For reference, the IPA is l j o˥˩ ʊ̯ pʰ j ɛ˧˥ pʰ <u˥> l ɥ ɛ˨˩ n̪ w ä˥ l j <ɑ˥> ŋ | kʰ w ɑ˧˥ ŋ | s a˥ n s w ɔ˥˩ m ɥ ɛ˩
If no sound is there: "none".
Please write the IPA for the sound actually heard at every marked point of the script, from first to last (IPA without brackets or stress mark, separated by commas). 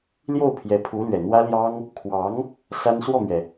u˧˥, ɑ˥